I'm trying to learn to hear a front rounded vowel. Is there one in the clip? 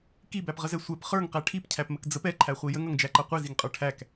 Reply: no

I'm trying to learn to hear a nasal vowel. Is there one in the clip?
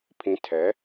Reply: yes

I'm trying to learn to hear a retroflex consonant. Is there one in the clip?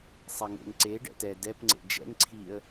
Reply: yes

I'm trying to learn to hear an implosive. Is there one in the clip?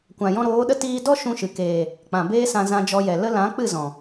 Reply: yes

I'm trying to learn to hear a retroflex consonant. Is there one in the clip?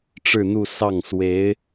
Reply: yes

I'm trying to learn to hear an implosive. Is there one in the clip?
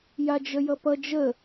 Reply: no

